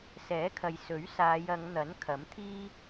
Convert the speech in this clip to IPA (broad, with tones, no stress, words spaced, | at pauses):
sɛː˨˥kʰɐ˨j sɵ˨˥ɥsaː˨˧jɐ˨˧ŋ n̪ɐ˨˥n kʰɐ˨˥mt̪ʰiː˥